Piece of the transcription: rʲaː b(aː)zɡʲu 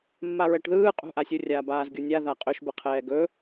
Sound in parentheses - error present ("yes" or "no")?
no